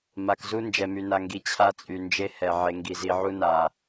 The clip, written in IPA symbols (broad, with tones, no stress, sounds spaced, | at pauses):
m a˨ k z u˦ n d͡ʒ ɛ˨ m y˨ n a˨ ŋ ɡ i˨ t͡ɕʰ a˦ t͡sʼ y˨ n d͡ʒ e˦ h ɛ˨ ʕ e˨ ŋ ɡ i˨ z i˨ ʕ u˦ n a˨